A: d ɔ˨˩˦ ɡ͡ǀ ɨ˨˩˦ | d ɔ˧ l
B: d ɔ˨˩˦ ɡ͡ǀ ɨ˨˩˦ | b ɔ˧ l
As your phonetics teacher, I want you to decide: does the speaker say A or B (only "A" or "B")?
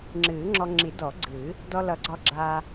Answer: A